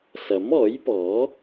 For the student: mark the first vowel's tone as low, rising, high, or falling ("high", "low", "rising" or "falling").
rising